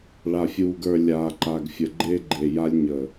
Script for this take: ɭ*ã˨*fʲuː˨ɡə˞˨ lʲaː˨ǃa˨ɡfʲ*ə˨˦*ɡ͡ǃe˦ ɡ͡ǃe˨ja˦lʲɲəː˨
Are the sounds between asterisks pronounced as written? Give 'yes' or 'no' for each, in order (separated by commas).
no, no